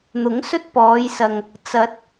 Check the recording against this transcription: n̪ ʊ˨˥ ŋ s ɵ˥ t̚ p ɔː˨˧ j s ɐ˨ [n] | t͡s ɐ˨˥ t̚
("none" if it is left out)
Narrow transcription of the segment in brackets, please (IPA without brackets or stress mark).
ŋ